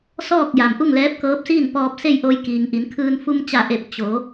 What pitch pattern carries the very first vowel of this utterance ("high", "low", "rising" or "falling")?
falling